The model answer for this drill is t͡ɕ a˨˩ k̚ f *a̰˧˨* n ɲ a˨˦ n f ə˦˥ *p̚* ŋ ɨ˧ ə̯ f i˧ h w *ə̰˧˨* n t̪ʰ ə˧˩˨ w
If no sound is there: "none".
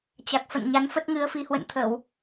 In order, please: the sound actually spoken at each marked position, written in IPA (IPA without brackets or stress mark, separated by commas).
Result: ə̰˧˨, t̚, ə̰˧˨